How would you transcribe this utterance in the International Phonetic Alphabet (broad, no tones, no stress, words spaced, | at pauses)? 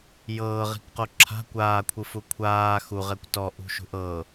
jɤːʁi̤kqo ǁʰa̤ kʷaːkʷʰɯfu kʷʰaː xuʁɛkʷ tɔʔṳʃṳʔ ɤ